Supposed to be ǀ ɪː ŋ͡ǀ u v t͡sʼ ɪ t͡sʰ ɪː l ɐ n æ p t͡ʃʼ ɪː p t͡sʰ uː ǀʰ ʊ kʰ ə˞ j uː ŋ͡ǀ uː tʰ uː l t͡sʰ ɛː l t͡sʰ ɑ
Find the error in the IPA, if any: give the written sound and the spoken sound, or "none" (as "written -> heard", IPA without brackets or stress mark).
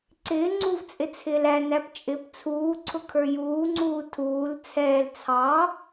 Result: ɐ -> æ